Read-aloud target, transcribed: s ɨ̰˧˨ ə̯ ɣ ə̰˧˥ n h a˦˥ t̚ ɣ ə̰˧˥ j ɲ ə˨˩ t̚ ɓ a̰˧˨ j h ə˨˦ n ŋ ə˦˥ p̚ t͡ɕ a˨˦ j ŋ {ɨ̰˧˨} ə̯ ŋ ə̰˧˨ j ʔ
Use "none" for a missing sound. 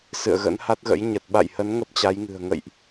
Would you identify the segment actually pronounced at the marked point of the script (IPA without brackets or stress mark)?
ɨ̤˨˩